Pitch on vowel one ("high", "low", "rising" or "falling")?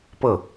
falling